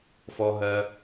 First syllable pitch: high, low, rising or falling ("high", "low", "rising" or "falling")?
high